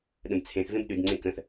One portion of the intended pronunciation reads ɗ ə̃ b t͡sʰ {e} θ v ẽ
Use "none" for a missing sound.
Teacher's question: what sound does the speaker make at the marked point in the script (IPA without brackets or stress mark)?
ẽ